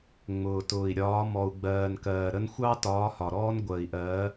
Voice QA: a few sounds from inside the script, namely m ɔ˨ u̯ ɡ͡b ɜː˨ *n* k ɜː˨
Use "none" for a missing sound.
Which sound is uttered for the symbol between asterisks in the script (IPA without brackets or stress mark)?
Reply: n